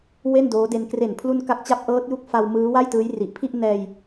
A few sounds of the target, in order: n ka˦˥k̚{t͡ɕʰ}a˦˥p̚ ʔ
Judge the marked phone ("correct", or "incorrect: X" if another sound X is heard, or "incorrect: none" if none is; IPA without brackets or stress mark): incorrect: t͡ɕ